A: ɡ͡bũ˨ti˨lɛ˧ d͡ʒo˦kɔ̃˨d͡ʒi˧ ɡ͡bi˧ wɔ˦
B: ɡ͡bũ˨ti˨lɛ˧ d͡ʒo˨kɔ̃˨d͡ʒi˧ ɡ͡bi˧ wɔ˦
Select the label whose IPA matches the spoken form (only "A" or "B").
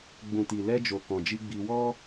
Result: B